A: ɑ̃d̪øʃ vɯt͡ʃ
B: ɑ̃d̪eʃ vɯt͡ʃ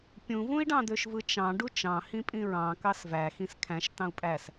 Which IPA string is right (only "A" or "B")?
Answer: A